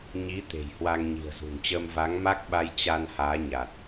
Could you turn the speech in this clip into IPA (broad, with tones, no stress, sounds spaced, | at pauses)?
ɲ i˨˦ t̪ e̤˨˩ j h w a˧ ŋ ɲ i̤˨˩ ə̯ z ṳ˨˩ n t͡ɕ əː˧ m v a˨˦ ŋ m a˦˥ k̚ ɓ a˧ j t͡ɕ a˧ n h aː˨˦ ɲ a˨˩ t̚